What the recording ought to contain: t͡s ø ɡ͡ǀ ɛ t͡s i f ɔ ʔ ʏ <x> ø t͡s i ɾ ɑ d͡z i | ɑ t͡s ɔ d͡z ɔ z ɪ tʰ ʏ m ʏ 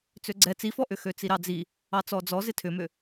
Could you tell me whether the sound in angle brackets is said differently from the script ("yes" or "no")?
no